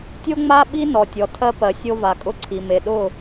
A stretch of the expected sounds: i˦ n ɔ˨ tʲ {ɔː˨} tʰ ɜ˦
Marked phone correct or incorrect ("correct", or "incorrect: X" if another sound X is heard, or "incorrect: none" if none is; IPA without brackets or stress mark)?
incorrect: ɔ˨